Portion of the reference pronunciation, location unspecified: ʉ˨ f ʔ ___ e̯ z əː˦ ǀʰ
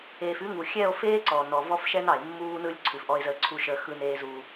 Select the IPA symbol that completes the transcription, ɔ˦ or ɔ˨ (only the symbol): ɔ˦